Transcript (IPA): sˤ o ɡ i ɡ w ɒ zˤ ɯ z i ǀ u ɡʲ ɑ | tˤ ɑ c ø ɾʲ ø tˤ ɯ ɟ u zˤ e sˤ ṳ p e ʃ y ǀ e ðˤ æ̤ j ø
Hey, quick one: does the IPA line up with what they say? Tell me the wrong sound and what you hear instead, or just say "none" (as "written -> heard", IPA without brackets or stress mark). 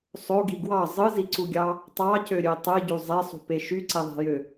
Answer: ɒ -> ɑ